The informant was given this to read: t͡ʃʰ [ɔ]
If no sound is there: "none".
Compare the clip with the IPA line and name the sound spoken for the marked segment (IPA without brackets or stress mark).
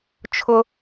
ʊ